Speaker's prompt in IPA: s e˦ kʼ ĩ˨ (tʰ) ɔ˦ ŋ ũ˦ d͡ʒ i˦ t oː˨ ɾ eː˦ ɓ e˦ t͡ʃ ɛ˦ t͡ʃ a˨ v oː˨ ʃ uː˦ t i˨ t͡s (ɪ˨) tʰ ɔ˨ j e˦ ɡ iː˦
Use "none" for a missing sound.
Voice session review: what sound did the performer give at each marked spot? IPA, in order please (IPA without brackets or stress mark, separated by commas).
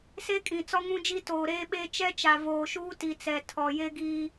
t͡s, ɛ˨